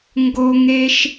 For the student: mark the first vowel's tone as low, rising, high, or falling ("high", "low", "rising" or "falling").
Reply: high